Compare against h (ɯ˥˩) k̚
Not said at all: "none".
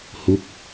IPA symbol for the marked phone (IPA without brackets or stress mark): u˥˩